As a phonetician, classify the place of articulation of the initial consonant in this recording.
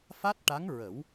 labial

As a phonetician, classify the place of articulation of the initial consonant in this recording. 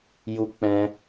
palatal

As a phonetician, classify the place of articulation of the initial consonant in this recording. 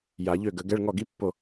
palatal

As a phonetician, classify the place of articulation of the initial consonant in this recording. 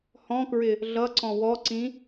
glottal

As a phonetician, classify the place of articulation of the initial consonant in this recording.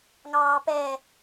velar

